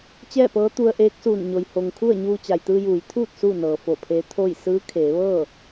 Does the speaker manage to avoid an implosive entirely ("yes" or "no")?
yes